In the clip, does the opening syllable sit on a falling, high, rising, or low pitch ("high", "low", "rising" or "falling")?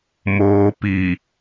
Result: low